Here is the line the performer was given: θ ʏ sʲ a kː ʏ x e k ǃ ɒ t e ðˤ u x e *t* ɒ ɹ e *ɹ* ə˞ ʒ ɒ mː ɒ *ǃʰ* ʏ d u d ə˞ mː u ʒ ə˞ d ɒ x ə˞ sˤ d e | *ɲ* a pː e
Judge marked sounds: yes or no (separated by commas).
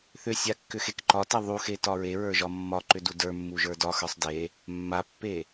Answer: yes, yes, no, no